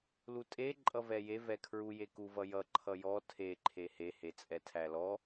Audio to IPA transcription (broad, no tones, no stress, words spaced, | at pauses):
lutʼe ǃʼʌvɛje vɛkʰɹu jeku vʌjʌ ǃʰʌjɔ tʰe ǃʰehe het͡sʼɛtʰælɔ